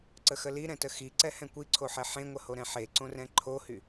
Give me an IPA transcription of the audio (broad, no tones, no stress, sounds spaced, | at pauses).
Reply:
ǀ ə x ə l i ɾ ɛ̃ t ə x i ǀ ɛ h ɛ̃ kʷ i ǀʰ o ħ ɛ ħ ẽ ŋʷ ə h o ɾ ɛ̃ ħ e ǀ õ r ɛ̃ ǃʰ o h y